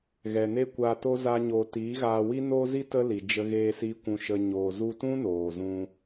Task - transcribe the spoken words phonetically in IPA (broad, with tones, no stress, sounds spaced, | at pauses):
ɣ ɛ˨ n e˦ kʷ aː˧ t o˦ z a˦ ɲ oː˧ t iː˨˦ ɣ aː˧ w i˦ n oː˦ z i˦ t ə˦ l i˨ d͡ʒ ə˦ ɣ eː˦ s iː˦ kʷ ũ˧ ʃ ə˧ ɲ oː˨ z u˧ t ũ˦ n oː˨ z ũ˧